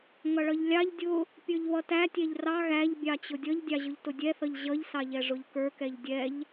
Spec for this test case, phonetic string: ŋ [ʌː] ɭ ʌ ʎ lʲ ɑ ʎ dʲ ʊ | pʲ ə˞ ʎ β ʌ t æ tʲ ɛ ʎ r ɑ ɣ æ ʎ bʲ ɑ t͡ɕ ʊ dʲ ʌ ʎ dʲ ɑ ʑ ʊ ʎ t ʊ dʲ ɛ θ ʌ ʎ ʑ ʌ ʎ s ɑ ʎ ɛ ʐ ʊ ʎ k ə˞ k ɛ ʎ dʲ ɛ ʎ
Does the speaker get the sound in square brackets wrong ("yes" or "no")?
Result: yes